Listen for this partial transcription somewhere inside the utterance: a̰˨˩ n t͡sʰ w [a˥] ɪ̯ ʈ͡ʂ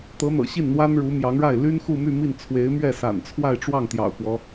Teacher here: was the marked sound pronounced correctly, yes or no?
no